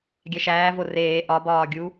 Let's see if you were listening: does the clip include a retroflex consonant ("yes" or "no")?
no